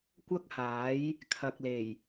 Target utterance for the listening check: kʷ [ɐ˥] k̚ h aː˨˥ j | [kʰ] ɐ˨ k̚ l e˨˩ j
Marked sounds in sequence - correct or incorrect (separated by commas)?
correct, correct